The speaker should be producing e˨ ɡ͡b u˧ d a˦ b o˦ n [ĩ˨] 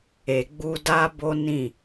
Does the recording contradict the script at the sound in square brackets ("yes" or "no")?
yes